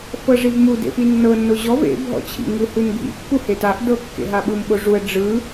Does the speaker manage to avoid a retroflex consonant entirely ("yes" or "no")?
no